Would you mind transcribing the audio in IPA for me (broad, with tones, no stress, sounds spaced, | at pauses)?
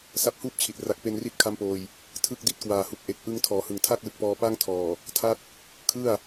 s a˦˥ p̚ h uː˥˩ p̚ t͡ɕʰ i˨˩ t̚ r a˨˩ k̚ p e˧ n r i˦˥ t̚ kʰ a˦˥ m p oː˧ j | tʰ ɯ˥˩ k̚ d i˦˥ t̚ k w aː˨˩ h u˨˩ k̚ ʔ e˨˩ k̚ ʔ ɯ˧ ŋ tʰ ɔː˩˦ h ɯ˨˩ ŋ tʰ a˥˩ k̚ l ɯ˨˩ k̚ p ɔː˧ p a˥˩ ŋ tʰ ɔː˨˩ | tʰ a˥˩ t̚ | kʰ ɯ˥˩ a̯